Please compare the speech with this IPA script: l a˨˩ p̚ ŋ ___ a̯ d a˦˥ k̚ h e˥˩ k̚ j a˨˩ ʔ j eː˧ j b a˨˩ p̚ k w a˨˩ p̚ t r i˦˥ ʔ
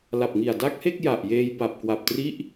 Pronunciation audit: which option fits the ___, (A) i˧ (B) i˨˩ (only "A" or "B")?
B